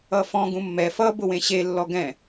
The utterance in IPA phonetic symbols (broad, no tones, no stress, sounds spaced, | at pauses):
ʌ f ɔ̃ ɡ ũ mː ɛ f ʌ b ʊ w ẽ ɕ e lː ɔ ɡ ɛ̃